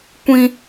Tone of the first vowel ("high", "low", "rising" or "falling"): high